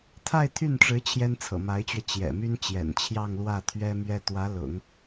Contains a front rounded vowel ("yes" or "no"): yes